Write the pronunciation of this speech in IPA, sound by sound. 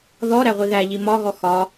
ð ɔ ɾ æ ʁʷ i ð æ ʎ i m ɒ ɣ ɔ x ɒ

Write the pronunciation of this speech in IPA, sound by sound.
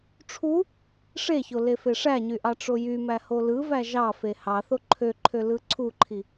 ʈ͡ʂʰ u | ʂ e ç o l e f e ʂ æ ɲ y ʔ ɑ ʈ͡ʂ o j y m æ h o l ɯ v æ ʒ ɑ f e h ɑ θ o ǃʰ ø ǃʰ ø l ɯ ǀʰ u ǃʰ i

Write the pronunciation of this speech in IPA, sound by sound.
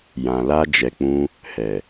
j ã˨ l a˧ d͡ʒ ɛ˨ k͡p ũ˧ | h ɛ˨

